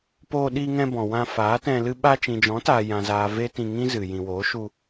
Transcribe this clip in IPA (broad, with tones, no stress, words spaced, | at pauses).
poː˧ɗiː˧ŋɛ̃˧ bɔ̃˨wã˧ faː˨˦tɛ̃˧ lɨ˧ɓa˧ t͡ʃĩ˨d͡ʒɔ̃˨˦taː˨ jã˨zaː˨ ve˦tĩ˧ŋĩ˦zɨ˨ jĩ˨woː˨˦ʃu˧